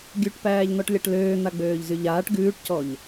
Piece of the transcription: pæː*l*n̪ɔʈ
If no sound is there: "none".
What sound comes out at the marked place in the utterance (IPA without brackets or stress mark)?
ʎ